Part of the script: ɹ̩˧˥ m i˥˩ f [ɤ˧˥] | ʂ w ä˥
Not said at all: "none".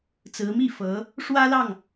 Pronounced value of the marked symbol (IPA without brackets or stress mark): ɤ˧˥